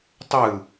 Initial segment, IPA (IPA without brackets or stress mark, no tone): tˤ